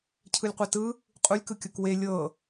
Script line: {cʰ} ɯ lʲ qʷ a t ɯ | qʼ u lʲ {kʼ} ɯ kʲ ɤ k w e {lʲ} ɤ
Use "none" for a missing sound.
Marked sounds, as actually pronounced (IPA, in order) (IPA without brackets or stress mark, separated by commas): cʰ, k, lʲ